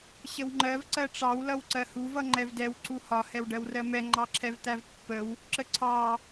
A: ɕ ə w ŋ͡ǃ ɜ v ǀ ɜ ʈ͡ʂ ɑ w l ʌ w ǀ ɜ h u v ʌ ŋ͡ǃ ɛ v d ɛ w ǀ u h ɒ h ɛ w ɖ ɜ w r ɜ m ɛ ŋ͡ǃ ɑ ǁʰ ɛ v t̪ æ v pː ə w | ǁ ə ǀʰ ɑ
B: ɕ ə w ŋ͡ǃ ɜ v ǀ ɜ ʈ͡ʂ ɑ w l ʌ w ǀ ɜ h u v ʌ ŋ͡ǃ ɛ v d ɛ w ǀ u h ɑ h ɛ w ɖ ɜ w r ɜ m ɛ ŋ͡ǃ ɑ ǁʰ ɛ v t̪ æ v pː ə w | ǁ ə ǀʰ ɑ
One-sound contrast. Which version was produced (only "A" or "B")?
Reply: A